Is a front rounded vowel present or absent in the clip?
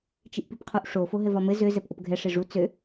present